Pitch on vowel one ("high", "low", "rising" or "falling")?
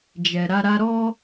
low